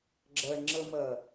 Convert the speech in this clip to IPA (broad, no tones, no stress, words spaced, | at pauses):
ɡ͡ǁɜɳŋ͡ǁəmɜ